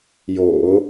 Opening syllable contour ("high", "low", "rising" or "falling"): low